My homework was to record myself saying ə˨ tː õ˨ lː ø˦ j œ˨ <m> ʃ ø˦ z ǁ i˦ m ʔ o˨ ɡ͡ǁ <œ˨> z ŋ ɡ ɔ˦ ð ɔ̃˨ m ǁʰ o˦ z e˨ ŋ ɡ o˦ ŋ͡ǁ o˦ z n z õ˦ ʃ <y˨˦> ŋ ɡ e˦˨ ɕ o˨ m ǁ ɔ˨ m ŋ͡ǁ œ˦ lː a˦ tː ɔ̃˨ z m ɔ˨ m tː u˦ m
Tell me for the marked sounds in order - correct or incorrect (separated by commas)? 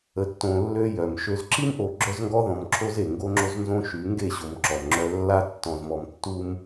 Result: correct, incorrect, correct